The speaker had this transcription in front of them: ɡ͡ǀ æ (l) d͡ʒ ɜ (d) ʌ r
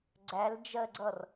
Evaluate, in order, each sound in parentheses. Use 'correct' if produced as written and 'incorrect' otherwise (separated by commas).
correct, incorrect